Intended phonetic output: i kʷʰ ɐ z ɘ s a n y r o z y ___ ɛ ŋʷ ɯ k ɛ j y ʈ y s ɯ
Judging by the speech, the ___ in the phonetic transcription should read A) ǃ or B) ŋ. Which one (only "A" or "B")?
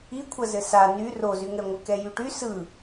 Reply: B